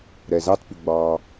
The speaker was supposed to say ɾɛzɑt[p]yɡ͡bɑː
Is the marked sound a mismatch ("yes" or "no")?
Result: no